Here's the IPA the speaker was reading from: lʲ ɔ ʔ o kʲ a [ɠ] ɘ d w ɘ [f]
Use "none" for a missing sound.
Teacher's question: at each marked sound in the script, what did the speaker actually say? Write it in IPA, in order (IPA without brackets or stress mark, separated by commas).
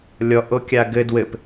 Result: ɡ, p